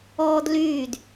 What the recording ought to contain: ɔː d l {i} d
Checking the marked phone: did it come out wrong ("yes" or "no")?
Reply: yes